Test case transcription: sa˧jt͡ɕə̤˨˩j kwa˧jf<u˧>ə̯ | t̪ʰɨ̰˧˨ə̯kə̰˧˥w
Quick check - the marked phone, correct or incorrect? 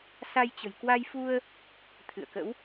correct